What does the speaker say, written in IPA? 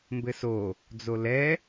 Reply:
m b ɘ s o | d͡z o l ɛ

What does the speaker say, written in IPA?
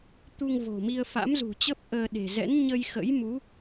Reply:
t̪ u˧ ŋ v o̤˨˩ m i˧ ə̯ f a̰˧˥ m z ṳ˨˩ t͡ɕ ə˦˥ p̚ ʔ əː˧ ɗ e̤˨˩ z ɛ̰˧˥ n ɲ ə˧ j x ə̰˧˥ j m u˨˦

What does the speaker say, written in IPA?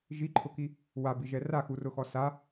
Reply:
ʒ i ǃʰ ʊ k i | w a b i ʒ ɛ r a x u r ʊ x ɔ s a

